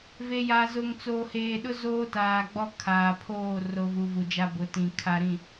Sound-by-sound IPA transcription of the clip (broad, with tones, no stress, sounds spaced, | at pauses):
v e˨ j a˨ z ʊ˨ ŋ t͡s oː˨ h eː˨ ɗ ʊ˦ z oː˦ t aː˨ ɡ͡b ɔ˦ kʰ aː˨ pʰ oː˦˨ r o˨ v u˨ v u˨ d͡ʒ a˦ b ʊ˨˦ t ĩ˨ kʰ a˨ ɾ ĩ˨